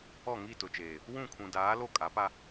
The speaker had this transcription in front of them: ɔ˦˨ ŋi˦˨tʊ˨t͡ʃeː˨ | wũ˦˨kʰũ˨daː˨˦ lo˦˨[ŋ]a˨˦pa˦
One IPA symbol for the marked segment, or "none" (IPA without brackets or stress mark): kʼ